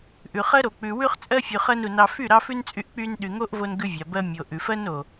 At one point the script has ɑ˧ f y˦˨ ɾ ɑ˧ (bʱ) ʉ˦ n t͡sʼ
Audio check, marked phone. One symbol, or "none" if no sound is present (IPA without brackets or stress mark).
f